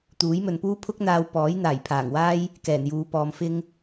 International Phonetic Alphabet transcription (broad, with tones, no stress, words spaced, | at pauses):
t̪uː˨˥jmɵ˨npuː˥ pʰʊ˥k̚n̪aː˧w pɔː˨˥j n̪aː˨˩jpʰaː˨˩ŋwaː˥j | kɛː˨˩njuː˨˧ pɔː˨m fɪ˥ŋ